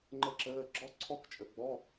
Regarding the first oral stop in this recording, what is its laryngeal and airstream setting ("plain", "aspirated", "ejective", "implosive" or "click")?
click